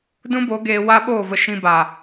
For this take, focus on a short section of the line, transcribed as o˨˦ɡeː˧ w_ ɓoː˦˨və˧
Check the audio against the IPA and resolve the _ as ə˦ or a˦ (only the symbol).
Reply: a˦